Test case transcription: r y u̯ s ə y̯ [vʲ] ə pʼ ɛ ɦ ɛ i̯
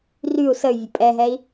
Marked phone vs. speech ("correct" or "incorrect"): correct